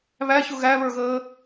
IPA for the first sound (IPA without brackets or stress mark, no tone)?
β